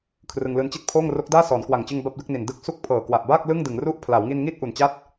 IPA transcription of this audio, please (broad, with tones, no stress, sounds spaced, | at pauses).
kʰ r ɯ˧ ŋ l ɯː˧ n t͡ɕ i˥˩ t̚ pʰ oː˥˩ ŋ r o˦˥ k̚ d aː˥˩ s ɔː˩˦ n k w a˨˩ ŋ t͡ɕ ɯ˧ ŋ b a˥˩ p̚ d ɯ˥˩ k̚ n i˨˩ n d ɯ˦˥ k̚ s u˥˩ k̚ pʰ ɤː˨˩ k w a˨˩ ʔ b aː˥˩ k̚ l ɯ˥˩ ŋ d ɯ˩˦ ŋ r u˥˩ ʔ pʰ l a˩˦ w ŋ i˧ n ŋ iː˥˩ t̚ ʔ u˨˩ n t͡ɕ a˥˩ t̚